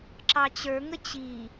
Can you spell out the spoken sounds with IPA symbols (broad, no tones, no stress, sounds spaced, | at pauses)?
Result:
ǁ ɑ t͡ɕ ə˞ ŋ ə t͡ɕ i